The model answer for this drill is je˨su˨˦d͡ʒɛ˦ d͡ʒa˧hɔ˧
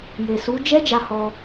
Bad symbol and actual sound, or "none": none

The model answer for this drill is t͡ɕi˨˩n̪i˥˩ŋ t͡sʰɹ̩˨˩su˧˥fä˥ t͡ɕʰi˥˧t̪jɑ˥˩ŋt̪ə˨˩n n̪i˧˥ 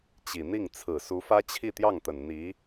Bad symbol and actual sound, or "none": none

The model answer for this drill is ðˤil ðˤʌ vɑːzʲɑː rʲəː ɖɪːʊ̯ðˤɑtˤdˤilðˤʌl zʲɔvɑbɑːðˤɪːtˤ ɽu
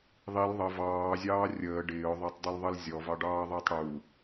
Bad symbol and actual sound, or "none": b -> ɖ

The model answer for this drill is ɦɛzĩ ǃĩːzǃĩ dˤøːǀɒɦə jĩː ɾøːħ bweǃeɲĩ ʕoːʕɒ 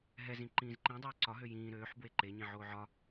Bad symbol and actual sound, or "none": ə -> ø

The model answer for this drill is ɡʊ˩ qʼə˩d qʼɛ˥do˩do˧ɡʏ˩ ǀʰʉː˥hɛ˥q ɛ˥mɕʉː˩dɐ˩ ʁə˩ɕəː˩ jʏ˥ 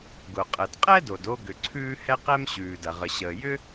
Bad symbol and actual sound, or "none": none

